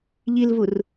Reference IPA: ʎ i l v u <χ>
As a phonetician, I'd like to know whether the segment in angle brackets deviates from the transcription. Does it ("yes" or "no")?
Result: yes